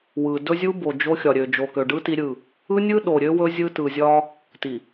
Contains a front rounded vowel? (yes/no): yes